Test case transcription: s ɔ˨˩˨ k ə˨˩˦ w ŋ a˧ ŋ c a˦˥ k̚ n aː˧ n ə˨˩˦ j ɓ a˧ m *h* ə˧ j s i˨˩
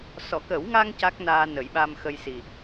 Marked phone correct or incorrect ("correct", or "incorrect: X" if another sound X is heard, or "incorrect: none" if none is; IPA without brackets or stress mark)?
incorrect: x